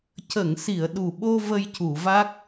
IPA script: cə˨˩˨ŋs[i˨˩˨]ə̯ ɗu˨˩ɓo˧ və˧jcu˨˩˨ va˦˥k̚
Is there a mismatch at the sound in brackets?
no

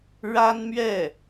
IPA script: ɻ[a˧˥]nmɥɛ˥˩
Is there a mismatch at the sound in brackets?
yes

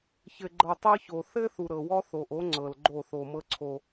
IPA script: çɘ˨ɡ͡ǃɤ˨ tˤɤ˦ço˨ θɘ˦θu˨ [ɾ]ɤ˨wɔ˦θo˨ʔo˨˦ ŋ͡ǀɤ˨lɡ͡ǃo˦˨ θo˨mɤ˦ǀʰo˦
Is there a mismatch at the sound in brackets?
no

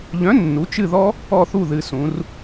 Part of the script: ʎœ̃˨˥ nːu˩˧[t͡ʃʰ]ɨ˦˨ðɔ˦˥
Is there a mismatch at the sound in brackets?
yes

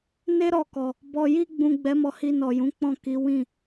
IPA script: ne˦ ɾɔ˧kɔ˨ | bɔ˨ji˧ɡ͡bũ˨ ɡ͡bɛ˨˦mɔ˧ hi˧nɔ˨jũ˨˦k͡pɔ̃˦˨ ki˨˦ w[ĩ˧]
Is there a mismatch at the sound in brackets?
yes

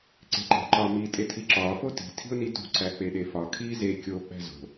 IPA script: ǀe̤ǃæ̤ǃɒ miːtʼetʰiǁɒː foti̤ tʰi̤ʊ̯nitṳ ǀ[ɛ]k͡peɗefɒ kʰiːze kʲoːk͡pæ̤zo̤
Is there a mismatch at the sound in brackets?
yes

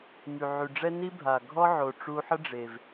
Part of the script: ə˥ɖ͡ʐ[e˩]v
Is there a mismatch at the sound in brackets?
no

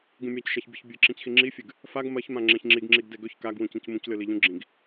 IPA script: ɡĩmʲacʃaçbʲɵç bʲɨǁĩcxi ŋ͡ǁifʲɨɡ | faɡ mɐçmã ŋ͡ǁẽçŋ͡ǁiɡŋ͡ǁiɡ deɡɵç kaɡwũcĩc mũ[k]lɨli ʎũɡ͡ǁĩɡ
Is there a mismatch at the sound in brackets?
yes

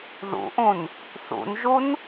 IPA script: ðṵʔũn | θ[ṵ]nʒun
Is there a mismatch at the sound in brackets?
no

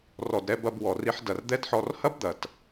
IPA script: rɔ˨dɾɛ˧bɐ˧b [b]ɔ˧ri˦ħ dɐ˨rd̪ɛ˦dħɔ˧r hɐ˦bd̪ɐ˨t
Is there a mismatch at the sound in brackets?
yes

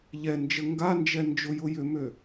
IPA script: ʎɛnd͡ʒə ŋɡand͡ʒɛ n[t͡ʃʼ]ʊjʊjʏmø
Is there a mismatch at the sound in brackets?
yes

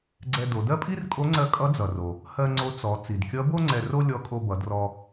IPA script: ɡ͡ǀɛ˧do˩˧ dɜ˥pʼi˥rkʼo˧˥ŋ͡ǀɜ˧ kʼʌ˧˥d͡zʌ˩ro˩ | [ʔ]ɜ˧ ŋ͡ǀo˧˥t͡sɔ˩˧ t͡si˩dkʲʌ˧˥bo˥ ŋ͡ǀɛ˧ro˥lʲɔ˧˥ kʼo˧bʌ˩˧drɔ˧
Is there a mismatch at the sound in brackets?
yes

